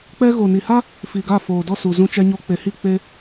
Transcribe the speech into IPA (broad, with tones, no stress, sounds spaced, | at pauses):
k͡p ɛ˧ ɣ o˨ n i˨ h a˦ | f i˨ ɡ a˦˨ f oː˨ d ɔ˦˨ s u˨ z ũ˧ t͡ʃ ɛ˧ ɲ o˧ k͡p e˨ h i˦˨ k͡p e˦